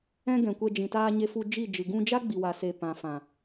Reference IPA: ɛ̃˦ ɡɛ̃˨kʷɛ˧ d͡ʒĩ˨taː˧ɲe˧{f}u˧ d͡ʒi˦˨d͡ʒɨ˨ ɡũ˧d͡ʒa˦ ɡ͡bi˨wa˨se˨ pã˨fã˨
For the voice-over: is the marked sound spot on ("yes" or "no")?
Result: yes